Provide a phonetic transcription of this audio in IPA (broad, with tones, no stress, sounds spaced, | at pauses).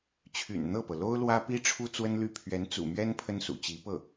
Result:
t͡ɕʰ y̰˨˩ n n̪ ɤ˥˩ p ɤ˩ l o˥ ʊ̯ l w ä˥ p i˥ ʈ͡ʂʰ u˥ t͡s w ə˥ n l y˥˩ pʰ ɥ ɛ˧˥ n t͡s ṵ˨˩ m ɥ ɛ˥ n pʰ ə˥ n s ṵ˨˩ t͡ɕ i˧˥ p ɤ˥˩